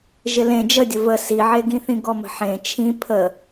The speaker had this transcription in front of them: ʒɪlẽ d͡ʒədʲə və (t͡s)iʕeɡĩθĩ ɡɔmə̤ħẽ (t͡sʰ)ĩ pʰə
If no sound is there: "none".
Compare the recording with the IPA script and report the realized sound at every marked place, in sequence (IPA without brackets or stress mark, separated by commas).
s, t͡ʃʰ